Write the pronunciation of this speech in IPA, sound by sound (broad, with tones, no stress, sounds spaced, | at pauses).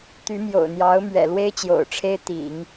t̪ y˧˥ m j o̰˨˩ ʊ̯ n̪ j ɑ˧˥ ʊ̯ m ɥ ɛ̰˨˩ l w e˥ ɪ̯ t͡ɕ j o̰˨˩ ʊ̯ ʈ͡ʂʰ e˥ ɪ̯ t̪ ḭ˨˩˦ ŋ